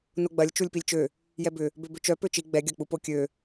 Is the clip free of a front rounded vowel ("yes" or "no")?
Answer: no